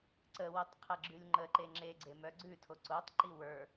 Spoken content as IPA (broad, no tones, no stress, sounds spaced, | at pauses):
ǀ ə w o tˤ qʰ ɛ ɡ͡ǁ ʉ lʲ ŋ͡ǃ ə ǃ e ŋ͡ǁ e ɡ͡ǀ e m œ ɡ͡ǀ ʉ tʰ o ǀ o tˤ ǃ i w ə˞